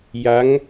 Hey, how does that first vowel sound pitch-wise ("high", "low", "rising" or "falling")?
rising